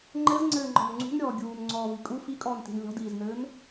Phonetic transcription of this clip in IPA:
ŋ͡ǃ ɘ z ŋ͡ǀ ɘː ŋ͡ǃ ɔ̤ n ŋ͡ǀ ṳ n ɾʲ ɔː ɡʲ uː n ŋ͡ǀ ɔː v i kʼ u f i kʼ ɔː n t i̤ n lʲ ɔ̤ d iː z n ɘː n

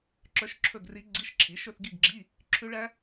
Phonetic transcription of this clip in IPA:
ǁ œ˦˥ ʃ ǁʰ ɵ˥˧ ɡ r i˦˥ ɡ͡ǀ i˧˥˧ ʃ ǁʰ i˨˥ ʃ ɵ˥˧ θ ɡ i˥˧ ɡ ɡ͡ǁ i˧˥˧ | ǁʰ ʉ˦˥ ɭ æ˦˥

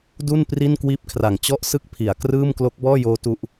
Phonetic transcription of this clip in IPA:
d u˥˩ n p r i˥˩ n k w iː˦˥ p̚ kʰ r a˨˩ ŋ t͡ɕ ɔ˥˩ ʔ s ɯ˥˩ k̚ pʰ i˩˦ a̯ k r ɯː˥˩ m k l o˦˥ k̚ b ɔː˥˩ j oː˦˥ t u˦˥ ʔ

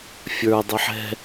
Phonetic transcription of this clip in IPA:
fʲ ə˞ dˤ i ħ ɛ̤

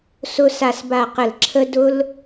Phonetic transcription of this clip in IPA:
s ʊ˧ s a˨ s b a˨ q ə˨ l ǁʰ ə˧ d ʊ˧ l

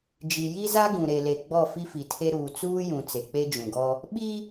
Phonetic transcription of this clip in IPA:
d͡ʒ i˨ j i˦ z a˦ ɡ ũ˨ ɾ e˨ l e˨ ɡ͡b ɔ˦˨ f i˦ f i˨ tʰ e˦ ɾ uː˨ t͡s uː˦ j ũ˨ t͡s e˨ k͡p e˦ d͡ʒ ũ˨ ɡ ɔ˦ | ɓ i˦

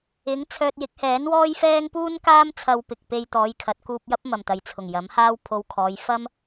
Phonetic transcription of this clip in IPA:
ɪ˨˥ ŋ t͡sʰ œː˧ t̚ j ɪ˨˥ k̚ h ɛː˨˥ n w ɔː˥ j f ɛː˥ ŋ p uː˥ n k aː˥ m t͡sʰ ɐ˧ w p ɪ˨ k̚ p e˧ j t̪ ɔː˨˧ j kʰ ɐ˨˥ t̚ k uː˧ p̚ j ɐ˥ p̚ m ɐ˨˩ m t̪ ɐ˨ j t͡sʰ ʊ˨˩ ŋ j ɐ˨˥ m h aː˥ w pʰ o˧ w kʰ ɔː˨˧ j f ɐ˥ m

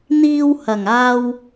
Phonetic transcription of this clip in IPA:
n̪ iː˧ w h ɐ˨˩ ŋ aː˧ w

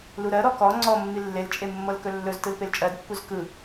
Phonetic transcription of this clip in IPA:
l u ɾ ɜ ɾ ɔ k ɔ ŋ͡ǀ ɔ mː i lː e l t͡ʃʼ e mː ɤ l k ɵ lː ɵ z t ɯ l p e l t͡ʃʼ ɜ d pː u z k ɯ

